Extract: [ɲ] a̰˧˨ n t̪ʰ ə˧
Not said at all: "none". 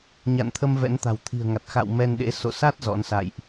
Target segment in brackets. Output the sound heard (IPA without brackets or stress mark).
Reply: ɲ